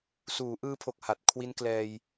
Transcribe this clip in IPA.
s uː˩˦ ʔ ɯː˧ pʰ o˨˩ k̚ h a˨˩ t̚ kʰ w i˦˥ n k l ɛː˧ j

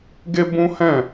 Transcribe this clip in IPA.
ɡ e˦ b ũ˦ h ɛ̃˦˨

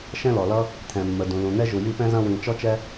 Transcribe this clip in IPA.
ʃ ɛ̃˥ l ɔ˩ l ʌ˥ | t̪ʰ ɛ̃˩ mː ə˩ d ũ˩ l ũ˩ n̪ ɛ˥ ʒ u˩ j i˥ p ɛ̃˥ z ɐ̃˥ w ĩ˩ t͡ʃ ɔ˥ t͡ʃ ɛ˥

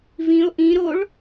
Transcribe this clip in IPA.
v ĩ o̯ ʔ ĩ ɾ o ɭ

